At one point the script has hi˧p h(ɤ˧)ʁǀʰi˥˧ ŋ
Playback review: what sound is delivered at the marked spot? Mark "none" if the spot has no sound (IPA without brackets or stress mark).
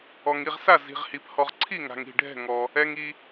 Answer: ɔ˧